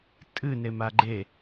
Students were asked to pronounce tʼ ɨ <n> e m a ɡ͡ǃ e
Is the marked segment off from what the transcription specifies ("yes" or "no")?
no